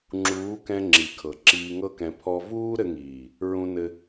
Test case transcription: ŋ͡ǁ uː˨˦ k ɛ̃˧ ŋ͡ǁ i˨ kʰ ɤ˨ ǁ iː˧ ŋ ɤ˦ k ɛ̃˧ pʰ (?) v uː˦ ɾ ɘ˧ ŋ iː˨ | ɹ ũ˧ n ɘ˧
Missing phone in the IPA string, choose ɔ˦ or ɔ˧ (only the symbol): ɔ˦